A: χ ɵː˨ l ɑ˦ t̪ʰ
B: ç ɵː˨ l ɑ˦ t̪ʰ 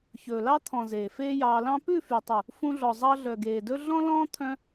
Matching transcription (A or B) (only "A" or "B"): B